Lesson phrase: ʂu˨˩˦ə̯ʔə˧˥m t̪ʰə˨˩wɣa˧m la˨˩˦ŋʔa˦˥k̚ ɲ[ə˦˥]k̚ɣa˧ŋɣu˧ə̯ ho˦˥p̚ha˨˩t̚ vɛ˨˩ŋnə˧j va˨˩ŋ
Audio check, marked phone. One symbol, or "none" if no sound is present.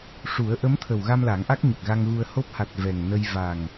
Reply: ə˨˩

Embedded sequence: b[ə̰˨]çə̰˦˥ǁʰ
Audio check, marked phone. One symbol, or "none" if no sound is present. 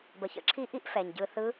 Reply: ə˨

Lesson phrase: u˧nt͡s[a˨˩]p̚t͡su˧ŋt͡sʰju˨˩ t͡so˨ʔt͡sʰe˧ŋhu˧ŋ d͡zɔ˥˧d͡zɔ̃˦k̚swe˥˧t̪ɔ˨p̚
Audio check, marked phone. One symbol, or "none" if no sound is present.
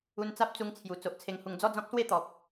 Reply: a˦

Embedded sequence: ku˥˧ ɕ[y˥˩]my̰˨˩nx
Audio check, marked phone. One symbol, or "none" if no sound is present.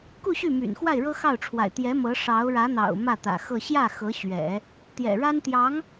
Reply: y˥˩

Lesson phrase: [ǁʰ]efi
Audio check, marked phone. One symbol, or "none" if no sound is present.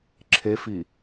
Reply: ǁʰ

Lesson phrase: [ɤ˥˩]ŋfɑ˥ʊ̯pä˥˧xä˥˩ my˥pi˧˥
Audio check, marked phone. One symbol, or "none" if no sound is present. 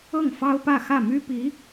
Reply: ɤ˥˩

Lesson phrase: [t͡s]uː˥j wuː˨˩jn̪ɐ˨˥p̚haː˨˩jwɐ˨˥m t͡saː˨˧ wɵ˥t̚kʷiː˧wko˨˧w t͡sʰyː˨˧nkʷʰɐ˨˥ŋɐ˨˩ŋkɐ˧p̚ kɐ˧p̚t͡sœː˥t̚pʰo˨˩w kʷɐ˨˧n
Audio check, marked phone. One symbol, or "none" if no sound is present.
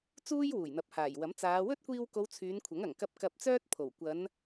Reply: t͡s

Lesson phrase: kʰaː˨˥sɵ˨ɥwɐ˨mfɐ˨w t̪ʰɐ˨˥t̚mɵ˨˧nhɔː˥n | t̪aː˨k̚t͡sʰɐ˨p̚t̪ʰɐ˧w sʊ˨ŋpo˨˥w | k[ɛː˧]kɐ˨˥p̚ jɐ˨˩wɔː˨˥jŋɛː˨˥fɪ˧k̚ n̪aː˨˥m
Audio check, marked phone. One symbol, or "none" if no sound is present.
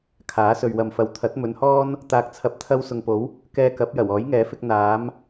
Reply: ɛː˧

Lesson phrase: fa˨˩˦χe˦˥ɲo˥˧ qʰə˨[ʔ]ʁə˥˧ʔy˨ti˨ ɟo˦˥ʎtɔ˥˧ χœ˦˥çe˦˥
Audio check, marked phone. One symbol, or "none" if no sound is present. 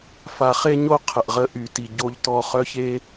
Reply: ʔ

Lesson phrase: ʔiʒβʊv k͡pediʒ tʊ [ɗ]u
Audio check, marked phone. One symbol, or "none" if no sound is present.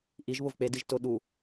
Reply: ɗ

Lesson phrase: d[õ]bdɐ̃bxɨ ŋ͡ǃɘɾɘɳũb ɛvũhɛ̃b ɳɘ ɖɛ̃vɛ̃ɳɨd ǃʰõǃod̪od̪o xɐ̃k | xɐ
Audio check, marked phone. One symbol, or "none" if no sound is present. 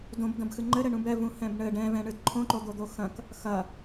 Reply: õ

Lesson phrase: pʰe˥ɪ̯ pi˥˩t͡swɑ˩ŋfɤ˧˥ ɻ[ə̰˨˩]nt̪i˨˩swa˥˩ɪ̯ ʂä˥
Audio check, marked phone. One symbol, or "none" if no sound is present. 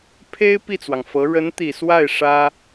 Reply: ə˧˥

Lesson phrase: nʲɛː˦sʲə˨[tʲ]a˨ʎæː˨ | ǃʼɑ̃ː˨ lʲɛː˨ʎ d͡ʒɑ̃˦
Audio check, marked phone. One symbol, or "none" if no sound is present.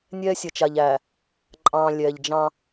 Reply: t͡ʃ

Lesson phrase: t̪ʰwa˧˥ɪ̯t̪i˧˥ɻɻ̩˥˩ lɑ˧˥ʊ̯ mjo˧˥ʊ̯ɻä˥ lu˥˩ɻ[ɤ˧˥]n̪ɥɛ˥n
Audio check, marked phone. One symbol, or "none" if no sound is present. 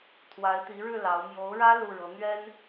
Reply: ɤ˧˥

